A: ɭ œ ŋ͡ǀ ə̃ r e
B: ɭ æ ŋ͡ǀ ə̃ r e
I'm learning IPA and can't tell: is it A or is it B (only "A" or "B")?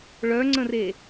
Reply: A